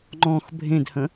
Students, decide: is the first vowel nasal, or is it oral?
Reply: nasal